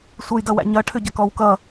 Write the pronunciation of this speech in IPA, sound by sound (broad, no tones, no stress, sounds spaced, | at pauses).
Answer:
sʷ ə j d ʌ w æ̰ ɲ ʌ ʈʰ ʏ ɟ ʌ k ɔ w k ʌ